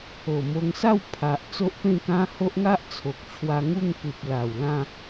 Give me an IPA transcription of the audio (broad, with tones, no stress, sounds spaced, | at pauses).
o˨˩ m o˧ ŋ s a˥˧ w pʰ a˨ ʔ t͡s o˦ ʔ p ẽ˥˧ k ã˦ h o˦ ʔ ŋ a˦ ʔ t͡sʰ o˨ k̚ t͡ɕʰ w a˧ ŋ u˥˧ ŋ k u˨ p̚ l a˨˩ w l ã˥˧